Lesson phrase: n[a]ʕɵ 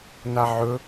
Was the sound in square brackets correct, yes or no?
yes